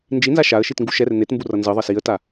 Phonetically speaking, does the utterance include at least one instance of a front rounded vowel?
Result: no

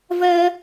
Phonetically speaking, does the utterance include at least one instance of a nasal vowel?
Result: no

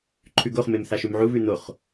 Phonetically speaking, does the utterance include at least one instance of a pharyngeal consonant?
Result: yes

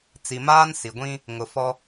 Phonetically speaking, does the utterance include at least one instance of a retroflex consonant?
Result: no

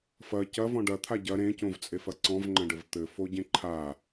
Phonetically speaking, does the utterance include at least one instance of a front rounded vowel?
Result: no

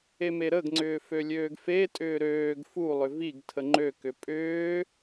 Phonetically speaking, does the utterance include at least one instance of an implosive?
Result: no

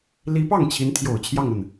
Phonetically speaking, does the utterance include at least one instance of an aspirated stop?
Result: yes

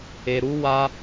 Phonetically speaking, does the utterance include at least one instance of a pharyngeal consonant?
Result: no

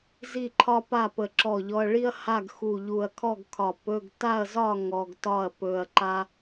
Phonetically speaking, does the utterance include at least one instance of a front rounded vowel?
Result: no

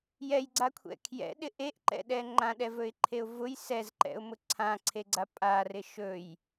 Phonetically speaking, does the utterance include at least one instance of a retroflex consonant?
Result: no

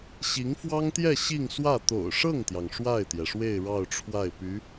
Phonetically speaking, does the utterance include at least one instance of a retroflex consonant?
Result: yes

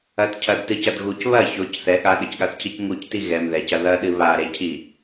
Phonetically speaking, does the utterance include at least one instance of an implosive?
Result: yes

